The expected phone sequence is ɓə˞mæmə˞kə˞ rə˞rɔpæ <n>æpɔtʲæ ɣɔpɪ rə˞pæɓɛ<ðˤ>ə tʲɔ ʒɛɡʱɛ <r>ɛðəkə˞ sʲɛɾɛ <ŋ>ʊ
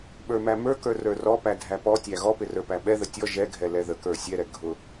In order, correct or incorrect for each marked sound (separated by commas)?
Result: incorrect, incorrect, incorrect, incorrect